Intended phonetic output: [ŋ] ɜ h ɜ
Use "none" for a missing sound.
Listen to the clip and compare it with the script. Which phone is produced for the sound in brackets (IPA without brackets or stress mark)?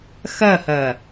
x